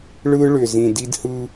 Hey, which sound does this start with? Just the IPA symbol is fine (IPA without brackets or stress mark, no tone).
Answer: ɭ